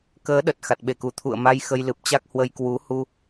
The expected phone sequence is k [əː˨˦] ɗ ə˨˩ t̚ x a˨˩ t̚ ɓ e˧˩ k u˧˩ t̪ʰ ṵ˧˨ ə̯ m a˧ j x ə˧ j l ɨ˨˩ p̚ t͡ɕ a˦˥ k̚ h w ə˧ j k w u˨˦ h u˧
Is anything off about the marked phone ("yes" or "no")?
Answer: no